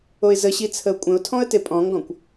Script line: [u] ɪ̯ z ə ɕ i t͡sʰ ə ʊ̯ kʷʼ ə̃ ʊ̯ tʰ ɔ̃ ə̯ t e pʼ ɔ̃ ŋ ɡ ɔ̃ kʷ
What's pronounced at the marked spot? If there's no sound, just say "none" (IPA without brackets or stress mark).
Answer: o